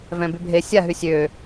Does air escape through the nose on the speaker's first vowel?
yes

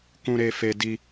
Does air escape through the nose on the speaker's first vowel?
yes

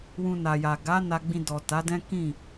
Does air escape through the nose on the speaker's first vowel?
yes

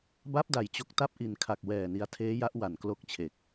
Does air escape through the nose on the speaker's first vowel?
no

